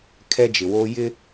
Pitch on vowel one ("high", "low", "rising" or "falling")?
high